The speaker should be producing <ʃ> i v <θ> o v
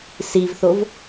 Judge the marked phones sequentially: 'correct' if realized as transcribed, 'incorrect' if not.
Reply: incorrect: s, correct

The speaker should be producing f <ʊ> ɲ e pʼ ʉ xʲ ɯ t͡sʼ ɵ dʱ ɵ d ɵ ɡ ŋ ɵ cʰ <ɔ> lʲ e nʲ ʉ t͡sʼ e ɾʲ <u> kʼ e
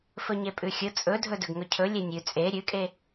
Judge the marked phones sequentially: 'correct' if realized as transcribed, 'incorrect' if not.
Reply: incorrect: ɵ, incorrect: ɵ, incorrect: ʉ

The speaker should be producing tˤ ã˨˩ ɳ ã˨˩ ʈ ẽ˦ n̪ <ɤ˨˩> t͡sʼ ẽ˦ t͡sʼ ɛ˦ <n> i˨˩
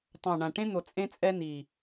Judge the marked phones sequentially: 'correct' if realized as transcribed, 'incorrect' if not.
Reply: incorrect: o˨˩, correct

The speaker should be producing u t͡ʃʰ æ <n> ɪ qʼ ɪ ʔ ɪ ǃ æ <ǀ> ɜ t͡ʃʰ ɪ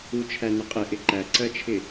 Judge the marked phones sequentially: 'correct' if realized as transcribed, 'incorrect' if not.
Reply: correct, correct

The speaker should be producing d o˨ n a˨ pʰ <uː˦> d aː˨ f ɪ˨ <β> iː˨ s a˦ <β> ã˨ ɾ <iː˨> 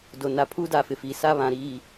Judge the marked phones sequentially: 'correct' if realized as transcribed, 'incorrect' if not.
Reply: correct, incorrect: f, correct, correct

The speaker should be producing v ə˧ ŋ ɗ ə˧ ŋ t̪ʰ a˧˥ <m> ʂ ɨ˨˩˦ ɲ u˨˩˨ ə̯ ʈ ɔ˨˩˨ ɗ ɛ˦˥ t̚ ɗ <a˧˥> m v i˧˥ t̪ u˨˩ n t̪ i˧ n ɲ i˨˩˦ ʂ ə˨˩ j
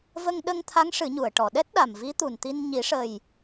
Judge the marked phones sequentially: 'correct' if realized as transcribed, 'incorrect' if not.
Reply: incorrect: ŋ, incorrect: a˨˩

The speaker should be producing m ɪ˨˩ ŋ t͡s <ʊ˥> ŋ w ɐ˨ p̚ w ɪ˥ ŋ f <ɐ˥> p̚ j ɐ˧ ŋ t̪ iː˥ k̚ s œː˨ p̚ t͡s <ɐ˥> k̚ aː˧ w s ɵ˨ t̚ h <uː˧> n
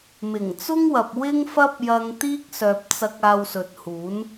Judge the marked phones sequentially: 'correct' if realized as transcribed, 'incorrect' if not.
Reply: correct, correct, incorrect: ɐ˧, incorrect: uː˨˥

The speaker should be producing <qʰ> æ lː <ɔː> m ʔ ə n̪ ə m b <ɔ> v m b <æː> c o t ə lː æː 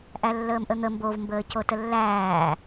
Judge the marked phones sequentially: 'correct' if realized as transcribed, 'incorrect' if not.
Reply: incorrect: ʔ, incorrect: əː, incorrect: o, incorrect: əː

